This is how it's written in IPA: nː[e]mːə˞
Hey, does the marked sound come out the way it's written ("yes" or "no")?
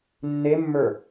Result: yes